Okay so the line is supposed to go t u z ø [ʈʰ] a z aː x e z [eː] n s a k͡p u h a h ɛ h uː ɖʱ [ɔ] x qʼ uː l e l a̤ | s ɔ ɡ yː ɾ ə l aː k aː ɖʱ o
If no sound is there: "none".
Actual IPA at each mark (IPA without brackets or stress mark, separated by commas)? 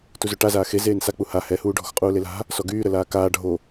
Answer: ʈ, eː, ɔ̤